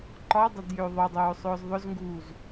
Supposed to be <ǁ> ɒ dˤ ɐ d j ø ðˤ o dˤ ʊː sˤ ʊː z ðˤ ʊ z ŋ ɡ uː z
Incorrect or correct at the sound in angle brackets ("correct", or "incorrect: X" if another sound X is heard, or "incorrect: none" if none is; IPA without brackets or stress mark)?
incorrect: ǃ